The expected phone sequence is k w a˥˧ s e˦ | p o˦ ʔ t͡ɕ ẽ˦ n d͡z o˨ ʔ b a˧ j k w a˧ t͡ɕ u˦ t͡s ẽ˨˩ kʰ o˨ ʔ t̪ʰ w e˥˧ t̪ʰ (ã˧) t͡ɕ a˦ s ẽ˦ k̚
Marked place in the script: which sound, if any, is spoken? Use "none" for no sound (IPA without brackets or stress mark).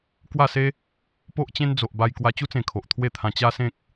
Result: ã˧